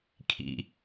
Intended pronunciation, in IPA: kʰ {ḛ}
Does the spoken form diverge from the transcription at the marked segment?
yes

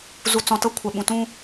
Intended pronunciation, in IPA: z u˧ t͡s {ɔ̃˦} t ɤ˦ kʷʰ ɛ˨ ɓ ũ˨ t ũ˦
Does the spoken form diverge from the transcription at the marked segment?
yes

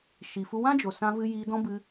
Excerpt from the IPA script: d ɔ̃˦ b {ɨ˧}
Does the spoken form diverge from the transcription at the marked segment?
no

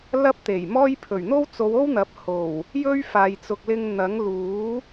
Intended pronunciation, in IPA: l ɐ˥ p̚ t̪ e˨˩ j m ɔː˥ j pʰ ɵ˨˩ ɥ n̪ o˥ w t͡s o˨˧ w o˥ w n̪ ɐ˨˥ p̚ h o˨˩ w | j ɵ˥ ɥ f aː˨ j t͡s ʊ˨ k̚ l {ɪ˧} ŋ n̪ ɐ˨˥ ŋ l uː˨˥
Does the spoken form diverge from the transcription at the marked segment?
no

